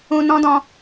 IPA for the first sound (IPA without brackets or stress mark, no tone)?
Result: ũ